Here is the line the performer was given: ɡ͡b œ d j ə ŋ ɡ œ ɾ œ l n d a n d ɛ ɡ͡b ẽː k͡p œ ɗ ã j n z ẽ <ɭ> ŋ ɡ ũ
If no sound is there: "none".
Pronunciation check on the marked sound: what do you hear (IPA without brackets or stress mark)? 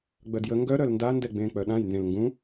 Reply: l